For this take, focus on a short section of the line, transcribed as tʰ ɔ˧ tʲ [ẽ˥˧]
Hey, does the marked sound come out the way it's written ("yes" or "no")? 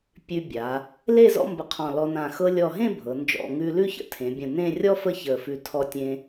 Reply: no